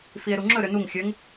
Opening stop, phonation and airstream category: click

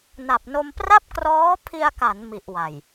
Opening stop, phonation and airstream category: plain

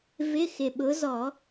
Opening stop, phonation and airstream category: implosive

